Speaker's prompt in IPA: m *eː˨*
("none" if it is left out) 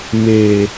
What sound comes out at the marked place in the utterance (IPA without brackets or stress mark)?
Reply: eː˨